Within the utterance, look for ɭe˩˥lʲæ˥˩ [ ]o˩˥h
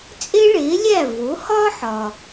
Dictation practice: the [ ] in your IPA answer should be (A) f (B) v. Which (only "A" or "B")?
B